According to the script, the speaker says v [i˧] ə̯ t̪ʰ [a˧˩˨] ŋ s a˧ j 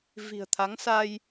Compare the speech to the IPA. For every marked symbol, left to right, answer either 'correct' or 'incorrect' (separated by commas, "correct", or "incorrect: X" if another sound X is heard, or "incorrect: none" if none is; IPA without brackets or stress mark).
incorrect: i̤˨˩, incorrect: a˨˦